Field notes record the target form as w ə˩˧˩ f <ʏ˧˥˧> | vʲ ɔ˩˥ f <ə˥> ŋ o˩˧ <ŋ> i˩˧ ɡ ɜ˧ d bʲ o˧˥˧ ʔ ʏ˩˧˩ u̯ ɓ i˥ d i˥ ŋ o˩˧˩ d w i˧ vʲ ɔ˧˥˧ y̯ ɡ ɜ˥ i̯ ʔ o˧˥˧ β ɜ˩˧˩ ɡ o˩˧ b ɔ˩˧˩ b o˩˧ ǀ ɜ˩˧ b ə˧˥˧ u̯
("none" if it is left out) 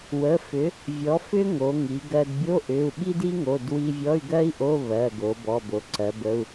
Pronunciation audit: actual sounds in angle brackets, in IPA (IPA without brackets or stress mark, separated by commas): ʏ˩˥, ʏ˥, ŋ